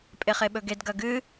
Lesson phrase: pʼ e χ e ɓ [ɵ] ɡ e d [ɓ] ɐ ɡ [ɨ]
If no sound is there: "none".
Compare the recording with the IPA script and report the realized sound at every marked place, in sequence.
ɵ, ɡ, ɨ

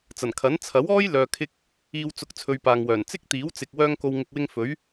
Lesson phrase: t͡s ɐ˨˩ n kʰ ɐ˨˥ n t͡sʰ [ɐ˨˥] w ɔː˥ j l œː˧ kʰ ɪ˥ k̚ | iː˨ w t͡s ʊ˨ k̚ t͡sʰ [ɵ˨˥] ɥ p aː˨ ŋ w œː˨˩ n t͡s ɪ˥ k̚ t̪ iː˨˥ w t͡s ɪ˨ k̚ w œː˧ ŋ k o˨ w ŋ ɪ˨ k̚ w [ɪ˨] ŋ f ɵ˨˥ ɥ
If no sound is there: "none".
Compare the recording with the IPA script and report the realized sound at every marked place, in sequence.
ɐ˨˥, ɵ˧, ɪ˧

